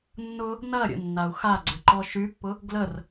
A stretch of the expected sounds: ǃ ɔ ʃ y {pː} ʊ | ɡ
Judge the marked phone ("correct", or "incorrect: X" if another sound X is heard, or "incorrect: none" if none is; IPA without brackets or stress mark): correct